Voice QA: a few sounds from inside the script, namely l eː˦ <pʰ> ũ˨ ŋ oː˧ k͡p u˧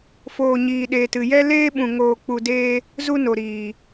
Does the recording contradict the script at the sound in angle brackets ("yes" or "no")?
yes